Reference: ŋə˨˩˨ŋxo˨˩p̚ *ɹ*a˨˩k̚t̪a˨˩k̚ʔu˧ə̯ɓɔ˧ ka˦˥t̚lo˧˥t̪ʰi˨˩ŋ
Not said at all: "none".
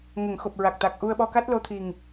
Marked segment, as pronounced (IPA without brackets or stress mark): ɹ